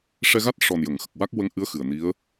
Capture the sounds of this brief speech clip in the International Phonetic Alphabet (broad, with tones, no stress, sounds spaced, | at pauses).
ʂ ɛ˧ ɣ a˦˥ t̚ ʂ ɔ˨˩ n j ə˨˩˨ ŋ x ə˨˩ k̚ w a˦˥ k̚ w ə˧˥ ŋ ʔ ɨ˧˥ ə̯ x ɨ˨˩ ə̯ n i˧˥ ə̯